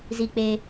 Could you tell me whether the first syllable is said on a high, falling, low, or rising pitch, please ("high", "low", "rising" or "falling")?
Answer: low